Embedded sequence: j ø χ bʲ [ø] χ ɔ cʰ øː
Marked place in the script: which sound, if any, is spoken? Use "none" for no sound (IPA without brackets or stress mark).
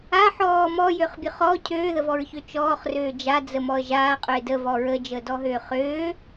ø